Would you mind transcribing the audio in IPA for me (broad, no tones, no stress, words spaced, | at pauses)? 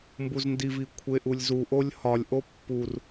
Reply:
mbuzndivi kʷʰeʔulʲzuʔolʲ hɒlʲʔo pːur